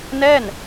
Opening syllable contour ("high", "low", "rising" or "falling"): falling